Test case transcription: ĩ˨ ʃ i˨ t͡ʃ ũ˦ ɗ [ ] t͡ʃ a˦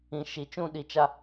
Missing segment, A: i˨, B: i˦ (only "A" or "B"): A